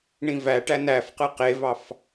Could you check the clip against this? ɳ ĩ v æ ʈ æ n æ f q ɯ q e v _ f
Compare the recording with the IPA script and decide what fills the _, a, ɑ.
ɑ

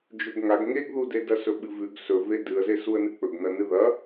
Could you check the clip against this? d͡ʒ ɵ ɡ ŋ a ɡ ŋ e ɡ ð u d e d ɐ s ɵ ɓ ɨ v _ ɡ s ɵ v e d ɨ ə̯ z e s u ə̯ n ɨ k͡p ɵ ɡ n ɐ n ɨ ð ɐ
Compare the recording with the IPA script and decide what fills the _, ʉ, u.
ʉ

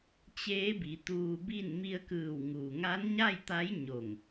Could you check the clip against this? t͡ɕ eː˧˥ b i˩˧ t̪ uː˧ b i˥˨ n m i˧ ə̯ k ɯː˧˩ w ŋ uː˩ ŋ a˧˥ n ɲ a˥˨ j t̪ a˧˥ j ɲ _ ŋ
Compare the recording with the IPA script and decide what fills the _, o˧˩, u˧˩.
o˧˩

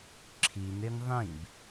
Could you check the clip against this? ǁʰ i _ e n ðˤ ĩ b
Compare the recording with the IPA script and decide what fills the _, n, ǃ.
n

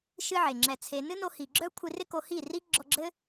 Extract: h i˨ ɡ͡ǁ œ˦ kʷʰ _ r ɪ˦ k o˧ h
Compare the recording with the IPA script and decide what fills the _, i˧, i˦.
i˧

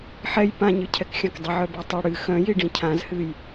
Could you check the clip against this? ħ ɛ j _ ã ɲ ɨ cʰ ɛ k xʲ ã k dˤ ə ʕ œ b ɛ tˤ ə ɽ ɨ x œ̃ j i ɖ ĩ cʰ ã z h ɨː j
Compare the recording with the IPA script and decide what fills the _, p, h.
p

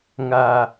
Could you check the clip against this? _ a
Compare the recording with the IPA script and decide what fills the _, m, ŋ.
ŋ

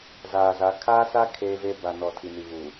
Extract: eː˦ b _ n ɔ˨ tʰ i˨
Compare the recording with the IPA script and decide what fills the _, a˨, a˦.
a˨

